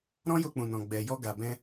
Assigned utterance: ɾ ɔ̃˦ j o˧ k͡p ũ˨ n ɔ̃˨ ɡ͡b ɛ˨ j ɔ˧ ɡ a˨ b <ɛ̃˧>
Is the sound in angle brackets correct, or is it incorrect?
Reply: correct